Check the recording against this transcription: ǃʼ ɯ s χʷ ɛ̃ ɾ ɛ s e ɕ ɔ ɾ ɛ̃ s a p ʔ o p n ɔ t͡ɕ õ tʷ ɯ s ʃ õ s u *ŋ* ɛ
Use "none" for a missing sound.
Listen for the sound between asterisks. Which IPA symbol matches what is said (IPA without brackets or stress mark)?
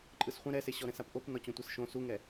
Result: ŋ